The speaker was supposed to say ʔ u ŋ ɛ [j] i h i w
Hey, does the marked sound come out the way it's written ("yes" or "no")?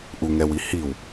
no